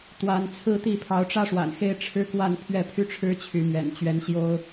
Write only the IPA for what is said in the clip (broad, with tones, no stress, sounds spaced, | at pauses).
t̪ w a˨˦ n t͡sʰ ɹ̩˦ t̪ i˥˨ pʰ ɑ˨˦ ʊ̯ ʈ͡ʂ ä˦ ʂ w a̰˨˩ n x e˥˨ ɪ̯ ʈ͡ʂʰ ɻ̩˦ k w a˥˨ n pʰ ɥ ɛ˥˨ pʰ y˥˨ ʈ͡ʂʰ ɻ̩˦ t͡ɕʰ y˨˦ m ɥ ɛ̰˨˩ n t͡ɕ ɥ ɛ˨˦ n ɕ j o˦ ʊ̯